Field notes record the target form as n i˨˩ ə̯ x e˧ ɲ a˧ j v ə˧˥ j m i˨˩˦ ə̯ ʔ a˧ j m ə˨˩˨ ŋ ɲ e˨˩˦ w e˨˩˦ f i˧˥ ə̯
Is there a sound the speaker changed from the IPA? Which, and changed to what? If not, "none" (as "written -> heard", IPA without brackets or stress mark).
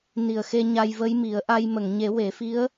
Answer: none